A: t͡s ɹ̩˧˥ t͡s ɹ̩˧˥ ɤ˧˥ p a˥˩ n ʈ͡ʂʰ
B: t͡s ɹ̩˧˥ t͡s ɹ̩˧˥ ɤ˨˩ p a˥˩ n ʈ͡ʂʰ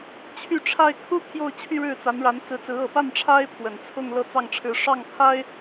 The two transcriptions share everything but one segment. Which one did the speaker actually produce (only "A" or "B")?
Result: B